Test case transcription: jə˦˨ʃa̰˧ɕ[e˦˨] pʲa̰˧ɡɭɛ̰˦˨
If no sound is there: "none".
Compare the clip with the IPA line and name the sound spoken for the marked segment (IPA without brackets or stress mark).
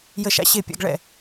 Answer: e˦˨